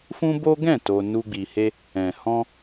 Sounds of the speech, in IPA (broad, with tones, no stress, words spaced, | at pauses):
fũ˦bo˦ ɡɛ̃˦˨ to˧ nu˧ɡ͡bi˨he˧ | ɛ̃˨hɔ̃˧